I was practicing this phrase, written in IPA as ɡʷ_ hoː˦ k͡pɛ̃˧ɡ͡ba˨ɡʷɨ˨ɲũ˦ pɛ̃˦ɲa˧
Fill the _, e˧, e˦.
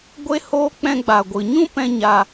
e˦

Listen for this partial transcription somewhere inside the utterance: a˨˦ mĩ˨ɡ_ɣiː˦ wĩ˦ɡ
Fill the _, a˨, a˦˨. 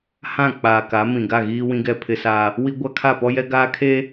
a˦˨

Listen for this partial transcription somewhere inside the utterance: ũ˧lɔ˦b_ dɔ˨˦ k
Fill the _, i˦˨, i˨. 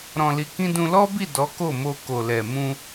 i˦˨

